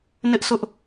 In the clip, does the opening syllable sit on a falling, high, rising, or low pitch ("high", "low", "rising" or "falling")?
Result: high